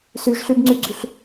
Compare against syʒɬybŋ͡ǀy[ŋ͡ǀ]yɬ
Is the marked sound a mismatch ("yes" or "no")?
yes